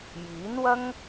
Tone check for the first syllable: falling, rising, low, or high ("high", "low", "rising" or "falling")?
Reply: rising